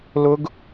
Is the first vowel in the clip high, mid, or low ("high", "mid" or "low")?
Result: high